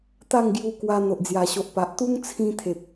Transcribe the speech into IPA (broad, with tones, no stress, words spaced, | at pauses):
t̪a˥˧ŋɡju˧kwa˧ n̪o˨ʔd͡zja˨˩ɕo˨ʔ pa˨ʔ t̪u˦ŋt͡sʰĩ˧ t̪ʰe˨p̚